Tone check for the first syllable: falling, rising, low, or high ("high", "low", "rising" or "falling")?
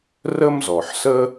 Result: high